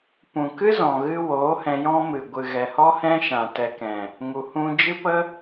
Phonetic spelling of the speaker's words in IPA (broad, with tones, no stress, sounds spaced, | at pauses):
p ũ˨ k ɨ˦ z ɔ̃˨ ɣ ɨ˧ w oː˨˦ h ɛ̃˧ j ɔ̃˦ m ɨ˨ ɡʷ ɨ˨ ɣ ɛ˨ h ɔ˦ h ɛ̃˦ ʃ ã˨ t ɛ˨ k ɛ̃˨ | ŋ u˨ h ũ˧ d͡ʒ ɨ˦ p ə˦